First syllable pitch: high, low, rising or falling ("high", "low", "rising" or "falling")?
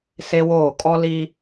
high